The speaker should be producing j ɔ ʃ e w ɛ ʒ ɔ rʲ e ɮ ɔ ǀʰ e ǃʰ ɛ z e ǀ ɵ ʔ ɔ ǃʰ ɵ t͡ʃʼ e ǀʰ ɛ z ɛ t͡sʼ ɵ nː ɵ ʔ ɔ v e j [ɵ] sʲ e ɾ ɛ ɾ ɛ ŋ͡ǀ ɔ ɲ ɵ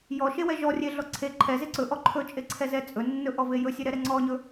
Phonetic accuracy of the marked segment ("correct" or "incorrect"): correct